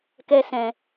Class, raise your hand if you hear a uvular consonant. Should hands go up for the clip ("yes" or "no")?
no